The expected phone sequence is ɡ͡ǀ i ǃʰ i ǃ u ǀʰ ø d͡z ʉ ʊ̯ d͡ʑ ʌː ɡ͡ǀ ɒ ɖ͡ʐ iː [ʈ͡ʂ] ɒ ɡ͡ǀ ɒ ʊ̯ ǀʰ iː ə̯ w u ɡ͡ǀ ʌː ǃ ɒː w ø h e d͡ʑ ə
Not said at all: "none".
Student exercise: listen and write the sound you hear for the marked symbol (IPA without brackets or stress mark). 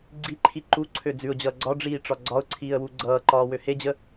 ʈ͡ʂ